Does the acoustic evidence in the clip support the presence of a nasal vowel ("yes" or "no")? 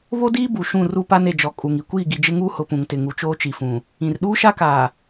yes